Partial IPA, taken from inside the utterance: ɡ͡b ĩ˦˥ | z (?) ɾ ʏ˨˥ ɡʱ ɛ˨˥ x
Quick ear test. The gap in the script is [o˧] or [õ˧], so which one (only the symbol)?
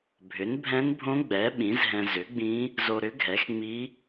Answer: o˧